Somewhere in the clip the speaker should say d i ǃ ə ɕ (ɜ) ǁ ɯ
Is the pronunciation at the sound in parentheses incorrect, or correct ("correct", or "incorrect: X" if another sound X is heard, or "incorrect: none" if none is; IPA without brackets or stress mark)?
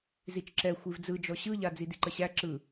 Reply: incorrect: æ